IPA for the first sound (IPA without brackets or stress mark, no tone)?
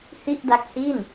h